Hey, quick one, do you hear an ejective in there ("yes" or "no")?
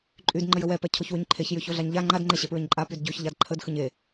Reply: yes